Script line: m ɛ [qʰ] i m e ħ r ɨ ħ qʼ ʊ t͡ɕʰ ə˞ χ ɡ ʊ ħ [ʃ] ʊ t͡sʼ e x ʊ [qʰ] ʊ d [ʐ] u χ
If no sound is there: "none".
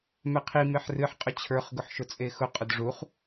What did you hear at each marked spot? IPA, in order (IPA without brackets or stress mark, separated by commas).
qʰ, ʃ, qʼ, ʐ